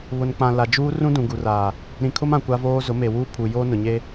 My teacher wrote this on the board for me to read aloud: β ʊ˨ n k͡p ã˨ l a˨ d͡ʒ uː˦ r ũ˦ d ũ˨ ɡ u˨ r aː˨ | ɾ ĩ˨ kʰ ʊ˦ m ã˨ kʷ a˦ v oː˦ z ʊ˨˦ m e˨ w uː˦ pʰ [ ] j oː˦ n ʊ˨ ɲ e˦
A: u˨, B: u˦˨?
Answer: A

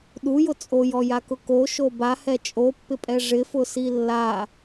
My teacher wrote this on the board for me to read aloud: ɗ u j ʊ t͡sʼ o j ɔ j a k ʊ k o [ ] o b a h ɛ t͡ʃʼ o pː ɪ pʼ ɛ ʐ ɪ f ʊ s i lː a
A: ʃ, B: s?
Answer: A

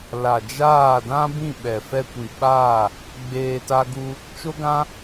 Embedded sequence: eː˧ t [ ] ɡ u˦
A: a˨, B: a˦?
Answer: B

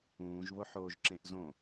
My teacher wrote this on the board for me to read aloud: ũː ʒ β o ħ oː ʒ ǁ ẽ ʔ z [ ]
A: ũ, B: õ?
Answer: B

